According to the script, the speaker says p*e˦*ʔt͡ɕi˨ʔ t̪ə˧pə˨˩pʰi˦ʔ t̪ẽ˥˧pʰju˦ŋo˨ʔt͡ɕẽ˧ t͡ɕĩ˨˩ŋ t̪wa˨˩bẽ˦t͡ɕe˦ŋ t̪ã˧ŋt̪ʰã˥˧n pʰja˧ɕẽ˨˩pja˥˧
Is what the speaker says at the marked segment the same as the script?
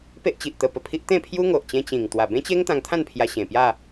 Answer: yes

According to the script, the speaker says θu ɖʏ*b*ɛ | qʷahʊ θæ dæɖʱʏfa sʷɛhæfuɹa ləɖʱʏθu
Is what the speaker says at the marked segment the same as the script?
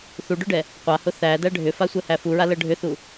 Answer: no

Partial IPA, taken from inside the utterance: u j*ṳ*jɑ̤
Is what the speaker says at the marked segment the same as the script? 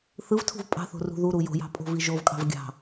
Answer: no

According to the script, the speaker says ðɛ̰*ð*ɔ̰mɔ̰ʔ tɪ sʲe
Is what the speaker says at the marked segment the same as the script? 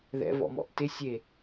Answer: no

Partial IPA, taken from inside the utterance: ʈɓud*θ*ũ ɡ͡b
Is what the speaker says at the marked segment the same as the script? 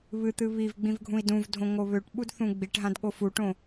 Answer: yes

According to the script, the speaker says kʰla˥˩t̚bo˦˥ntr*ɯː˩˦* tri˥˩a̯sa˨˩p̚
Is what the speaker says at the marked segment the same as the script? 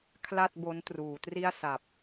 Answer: no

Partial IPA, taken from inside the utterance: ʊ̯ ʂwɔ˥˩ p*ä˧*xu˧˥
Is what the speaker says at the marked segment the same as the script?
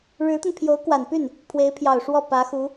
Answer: no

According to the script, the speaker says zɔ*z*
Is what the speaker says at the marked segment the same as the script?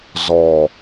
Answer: no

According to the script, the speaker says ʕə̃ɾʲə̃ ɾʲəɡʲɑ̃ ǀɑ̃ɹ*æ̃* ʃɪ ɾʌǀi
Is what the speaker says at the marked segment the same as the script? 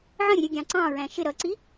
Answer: yes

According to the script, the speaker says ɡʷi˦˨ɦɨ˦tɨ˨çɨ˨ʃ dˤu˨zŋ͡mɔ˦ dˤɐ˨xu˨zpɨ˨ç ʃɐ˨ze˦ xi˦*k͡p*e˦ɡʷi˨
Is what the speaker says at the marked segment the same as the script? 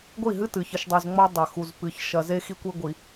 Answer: no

